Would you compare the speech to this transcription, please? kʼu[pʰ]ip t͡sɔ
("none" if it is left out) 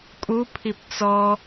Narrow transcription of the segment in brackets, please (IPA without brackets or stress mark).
pʰ